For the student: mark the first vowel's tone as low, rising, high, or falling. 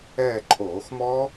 falling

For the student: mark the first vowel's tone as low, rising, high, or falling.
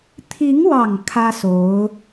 rising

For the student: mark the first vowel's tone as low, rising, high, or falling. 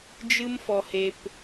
high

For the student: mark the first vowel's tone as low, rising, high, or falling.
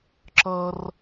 high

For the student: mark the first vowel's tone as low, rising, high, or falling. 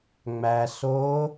low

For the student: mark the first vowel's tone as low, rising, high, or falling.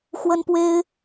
high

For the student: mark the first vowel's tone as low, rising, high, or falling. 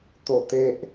falling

